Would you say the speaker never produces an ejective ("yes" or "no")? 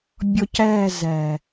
yes